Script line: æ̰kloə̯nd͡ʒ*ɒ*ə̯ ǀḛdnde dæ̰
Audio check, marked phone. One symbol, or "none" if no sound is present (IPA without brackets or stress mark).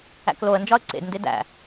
ɒ